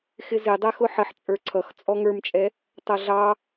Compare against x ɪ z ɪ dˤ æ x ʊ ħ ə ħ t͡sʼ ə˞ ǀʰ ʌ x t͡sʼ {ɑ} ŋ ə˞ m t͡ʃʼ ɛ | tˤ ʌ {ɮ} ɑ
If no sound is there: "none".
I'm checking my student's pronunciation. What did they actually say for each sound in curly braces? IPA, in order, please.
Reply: ɔ, ɮ

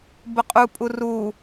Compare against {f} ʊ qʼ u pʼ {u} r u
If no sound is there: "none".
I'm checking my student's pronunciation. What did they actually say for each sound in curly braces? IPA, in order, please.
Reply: b, u

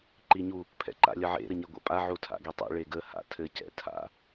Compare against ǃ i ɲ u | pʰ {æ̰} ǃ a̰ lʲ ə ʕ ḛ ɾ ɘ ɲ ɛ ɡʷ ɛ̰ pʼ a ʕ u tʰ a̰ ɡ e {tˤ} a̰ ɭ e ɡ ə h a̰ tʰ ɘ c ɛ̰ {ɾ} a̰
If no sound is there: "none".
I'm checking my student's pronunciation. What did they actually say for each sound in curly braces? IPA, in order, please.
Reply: ɛ̰, tˤ, tʰ

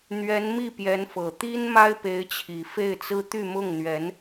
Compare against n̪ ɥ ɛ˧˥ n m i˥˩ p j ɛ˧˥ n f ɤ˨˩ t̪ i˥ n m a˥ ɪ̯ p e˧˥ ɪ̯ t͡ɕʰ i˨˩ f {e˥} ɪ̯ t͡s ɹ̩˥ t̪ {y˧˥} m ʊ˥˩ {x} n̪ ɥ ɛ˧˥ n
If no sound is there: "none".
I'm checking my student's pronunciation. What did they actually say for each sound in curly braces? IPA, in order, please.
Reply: e˥˩, y˥˧, ŋ

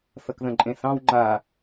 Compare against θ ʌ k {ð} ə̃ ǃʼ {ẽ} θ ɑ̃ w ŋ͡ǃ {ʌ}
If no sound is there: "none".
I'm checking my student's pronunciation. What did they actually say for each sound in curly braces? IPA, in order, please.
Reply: ð, ẽ, a

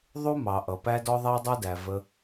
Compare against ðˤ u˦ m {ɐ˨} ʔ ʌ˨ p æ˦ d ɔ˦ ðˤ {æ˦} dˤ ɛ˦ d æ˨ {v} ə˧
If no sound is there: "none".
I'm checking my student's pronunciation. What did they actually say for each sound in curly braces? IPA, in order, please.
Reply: ɑ˨, æ˦, v

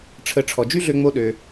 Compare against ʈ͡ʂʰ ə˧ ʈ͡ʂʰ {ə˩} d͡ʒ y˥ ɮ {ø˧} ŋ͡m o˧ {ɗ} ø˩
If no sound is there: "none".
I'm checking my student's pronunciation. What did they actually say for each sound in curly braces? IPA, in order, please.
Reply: ɔ˩, ø˧, ɗ

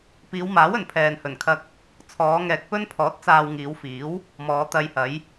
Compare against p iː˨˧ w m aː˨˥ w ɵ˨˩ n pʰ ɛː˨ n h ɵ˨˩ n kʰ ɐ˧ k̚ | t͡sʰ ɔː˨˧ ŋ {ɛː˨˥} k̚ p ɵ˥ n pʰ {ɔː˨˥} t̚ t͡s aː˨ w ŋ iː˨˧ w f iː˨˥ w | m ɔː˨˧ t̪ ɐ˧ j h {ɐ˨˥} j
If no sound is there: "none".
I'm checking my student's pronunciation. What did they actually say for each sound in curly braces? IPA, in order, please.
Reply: ɛː˨, ɔː˨˥, ɐ˨˥

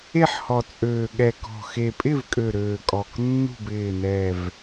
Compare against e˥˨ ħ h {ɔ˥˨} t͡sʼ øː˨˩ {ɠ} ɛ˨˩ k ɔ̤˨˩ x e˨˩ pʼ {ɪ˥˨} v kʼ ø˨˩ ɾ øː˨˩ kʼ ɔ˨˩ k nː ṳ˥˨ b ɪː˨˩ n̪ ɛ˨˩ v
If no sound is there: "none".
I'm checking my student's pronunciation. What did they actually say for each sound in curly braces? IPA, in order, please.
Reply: ɔ˨˩, ɠ, ɪ˥˨

